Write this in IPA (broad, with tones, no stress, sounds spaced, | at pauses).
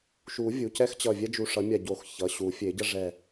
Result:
ʃ u˨˩˦ vʲ u˩˧˩ c ɛ˦ x t͡ɕ ʌ˧˩ vʲ ɛ˦ d͡ʒ u˧˩ ʂ ʌ˨˩˦ mʲ a˧˩ ɟ o˨˩˦ x ç ʌ˩˧˩ ɕ u˨˩˦ fʲ e˨˩˦ ɟ ʌ˦ ʐ ɛ˧˩